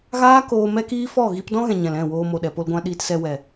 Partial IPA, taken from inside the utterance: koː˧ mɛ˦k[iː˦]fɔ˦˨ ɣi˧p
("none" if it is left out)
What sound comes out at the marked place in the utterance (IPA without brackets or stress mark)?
iː˦